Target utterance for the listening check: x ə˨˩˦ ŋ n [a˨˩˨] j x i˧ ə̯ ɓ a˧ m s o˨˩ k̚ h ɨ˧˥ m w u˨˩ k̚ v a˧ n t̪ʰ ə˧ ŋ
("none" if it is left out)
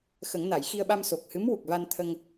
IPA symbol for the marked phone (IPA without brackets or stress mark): a˨˩˨